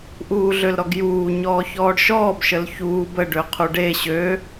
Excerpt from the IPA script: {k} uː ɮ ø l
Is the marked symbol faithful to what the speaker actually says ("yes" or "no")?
no